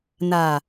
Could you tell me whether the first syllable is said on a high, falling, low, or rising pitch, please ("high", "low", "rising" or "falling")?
low